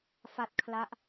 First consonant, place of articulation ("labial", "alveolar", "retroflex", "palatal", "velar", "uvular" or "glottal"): labial